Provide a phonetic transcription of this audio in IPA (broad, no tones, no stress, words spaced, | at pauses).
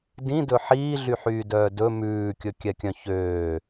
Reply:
dĩdɵ ħiːɮyħyːdœː dɵ mʉːkʲɵkʲɛkʲœ̃ çøː